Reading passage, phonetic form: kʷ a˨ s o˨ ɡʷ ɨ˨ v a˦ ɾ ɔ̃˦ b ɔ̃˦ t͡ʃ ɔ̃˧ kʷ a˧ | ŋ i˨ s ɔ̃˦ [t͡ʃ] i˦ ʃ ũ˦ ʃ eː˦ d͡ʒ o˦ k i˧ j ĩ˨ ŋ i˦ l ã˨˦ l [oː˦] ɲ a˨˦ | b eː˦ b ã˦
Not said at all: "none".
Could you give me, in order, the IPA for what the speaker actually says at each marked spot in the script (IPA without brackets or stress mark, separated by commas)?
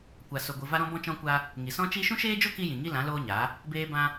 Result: t͡ʃ, oː˦